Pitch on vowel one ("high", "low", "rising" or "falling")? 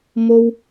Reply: high